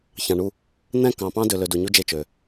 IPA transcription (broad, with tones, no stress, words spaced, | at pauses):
çɑ̃˨ɳu˦˨ | n̪ɛ̃˦˨kɑ̃˨ pɑ̃˦dø˨lø˨ du˨ɲu˦ d͡ʒe˦˨t͡ʃø˨